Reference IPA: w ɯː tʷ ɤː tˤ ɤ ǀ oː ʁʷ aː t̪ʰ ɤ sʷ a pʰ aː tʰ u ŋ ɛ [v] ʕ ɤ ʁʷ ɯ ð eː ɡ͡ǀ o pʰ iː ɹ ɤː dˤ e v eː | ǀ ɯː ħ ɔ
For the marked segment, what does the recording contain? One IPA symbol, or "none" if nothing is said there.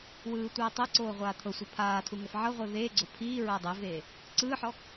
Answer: f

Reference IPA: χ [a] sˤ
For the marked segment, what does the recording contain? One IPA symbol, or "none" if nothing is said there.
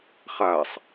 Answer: a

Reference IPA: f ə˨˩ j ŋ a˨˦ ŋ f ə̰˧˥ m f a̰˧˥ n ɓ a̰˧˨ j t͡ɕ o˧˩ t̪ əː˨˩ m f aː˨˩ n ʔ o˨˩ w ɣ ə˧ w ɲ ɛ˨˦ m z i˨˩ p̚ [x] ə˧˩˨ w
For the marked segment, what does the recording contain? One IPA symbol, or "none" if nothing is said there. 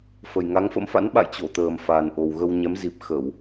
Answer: x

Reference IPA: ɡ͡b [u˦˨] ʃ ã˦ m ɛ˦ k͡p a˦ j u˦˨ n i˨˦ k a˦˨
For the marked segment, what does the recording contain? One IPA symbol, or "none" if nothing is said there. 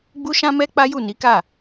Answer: u˦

